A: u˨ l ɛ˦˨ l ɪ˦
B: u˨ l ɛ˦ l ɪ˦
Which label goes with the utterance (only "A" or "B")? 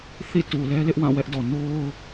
B